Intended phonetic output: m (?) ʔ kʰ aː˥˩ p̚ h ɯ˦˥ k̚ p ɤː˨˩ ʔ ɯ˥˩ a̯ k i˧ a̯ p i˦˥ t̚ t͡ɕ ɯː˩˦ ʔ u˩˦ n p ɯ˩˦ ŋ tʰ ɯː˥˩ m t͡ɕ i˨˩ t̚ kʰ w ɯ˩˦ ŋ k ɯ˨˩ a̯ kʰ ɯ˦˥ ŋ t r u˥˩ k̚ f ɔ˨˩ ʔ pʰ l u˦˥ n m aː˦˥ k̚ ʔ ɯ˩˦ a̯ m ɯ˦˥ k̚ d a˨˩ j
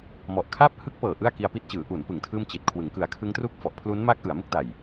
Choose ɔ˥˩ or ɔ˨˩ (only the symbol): ɔ˨˩